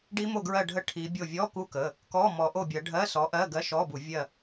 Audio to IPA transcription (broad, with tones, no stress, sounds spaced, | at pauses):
ɖ i˦˥ m o˦˨ ɡ ɹ ɜ˦˨ ɖʱ ə˦˨ ʈʰ i˨˦ bʲ o˦˨ vʲ ɔ˧˥˧ k u˦˥ k ə˩˧˩ | k ɔ˧˥˧ m ɔ˨˦ ʔ o˦˨ bʲ ɜ˨˦ ɖʱ ɜ˧˥˧ s ɔ˨˦ ʔ ɜ˧˥˧ ɡ ɜ˧˥˧ ʃ ɔ˧˥˧ b u˧˩˧ vʲ ɜ˦˨